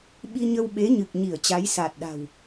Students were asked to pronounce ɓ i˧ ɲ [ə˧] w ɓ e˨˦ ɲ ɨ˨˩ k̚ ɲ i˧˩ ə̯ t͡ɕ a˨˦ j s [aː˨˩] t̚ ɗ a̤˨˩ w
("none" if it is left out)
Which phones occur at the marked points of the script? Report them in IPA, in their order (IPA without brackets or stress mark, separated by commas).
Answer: ə˧, aː˨˩